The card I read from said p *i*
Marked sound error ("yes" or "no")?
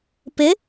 yes